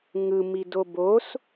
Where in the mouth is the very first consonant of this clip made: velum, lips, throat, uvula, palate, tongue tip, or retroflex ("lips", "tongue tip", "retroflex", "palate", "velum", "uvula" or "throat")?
velum